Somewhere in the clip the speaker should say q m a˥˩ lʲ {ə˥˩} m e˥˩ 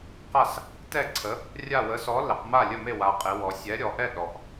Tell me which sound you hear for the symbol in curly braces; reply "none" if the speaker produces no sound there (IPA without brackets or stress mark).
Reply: ə˥˩